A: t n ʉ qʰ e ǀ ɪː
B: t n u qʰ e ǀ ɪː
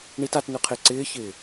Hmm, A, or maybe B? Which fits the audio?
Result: A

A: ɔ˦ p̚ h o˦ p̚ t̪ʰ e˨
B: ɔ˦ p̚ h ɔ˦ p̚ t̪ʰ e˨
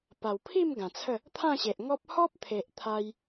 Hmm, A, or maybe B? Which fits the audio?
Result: B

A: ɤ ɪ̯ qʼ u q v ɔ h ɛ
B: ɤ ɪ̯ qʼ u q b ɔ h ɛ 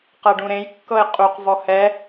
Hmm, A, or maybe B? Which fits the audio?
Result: A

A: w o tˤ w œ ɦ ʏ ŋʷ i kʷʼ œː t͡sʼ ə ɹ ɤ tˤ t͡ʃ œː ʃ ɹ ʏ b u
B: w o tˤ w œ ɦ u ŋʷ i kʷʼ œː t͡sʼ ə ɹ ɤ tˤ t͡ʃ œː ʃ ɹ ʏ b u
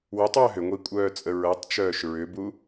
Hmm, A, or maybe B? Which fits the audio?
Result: A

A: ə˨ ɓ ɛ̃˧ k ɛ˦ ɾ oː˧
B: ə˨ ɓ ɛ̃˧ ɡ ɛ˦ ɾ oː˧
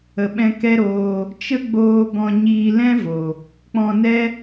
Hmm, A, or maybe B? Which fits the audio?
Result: A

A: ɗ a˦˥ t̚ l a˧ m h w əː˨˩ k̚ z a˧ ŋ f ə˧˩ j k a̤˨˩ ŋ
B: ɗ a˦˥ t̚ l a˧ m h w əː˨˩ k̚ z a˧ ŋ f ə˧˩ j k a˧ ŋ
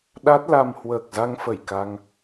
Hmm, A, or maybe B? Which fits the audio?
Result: B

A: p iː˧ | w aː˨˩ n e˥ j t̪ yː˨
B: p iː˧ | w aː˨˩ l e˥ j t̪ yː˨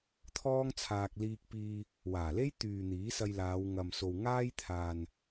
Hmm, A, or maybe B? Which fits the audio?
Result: B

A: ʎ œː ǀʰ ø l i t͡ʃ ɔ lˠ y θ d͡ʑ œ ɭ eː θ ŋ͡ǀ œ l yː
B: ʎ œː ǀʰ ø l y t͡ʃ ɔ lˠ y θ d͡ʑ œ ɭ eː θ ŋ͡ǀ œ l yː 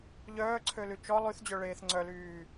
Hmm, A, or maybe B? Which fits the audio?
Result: B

